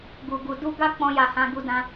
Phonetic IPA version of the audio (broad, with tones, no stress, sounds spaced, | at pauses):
ɡ u˨ ɡ u˨ d u˧ ɡ a˦ k͡p ɔ̃˧ j a˨ h ã˧ ɡ u˧ d ã˧